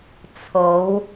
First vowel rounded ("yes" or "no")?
yes